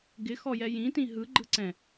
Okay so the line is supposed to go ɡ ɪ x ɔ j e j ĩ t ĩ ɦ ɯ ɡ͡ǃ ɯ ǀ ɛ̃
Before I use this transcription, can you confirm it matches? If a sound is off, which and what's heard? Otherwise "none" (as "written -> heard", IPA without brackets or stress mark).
e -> ɛ